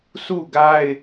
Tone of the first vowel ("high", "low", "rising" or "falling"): falling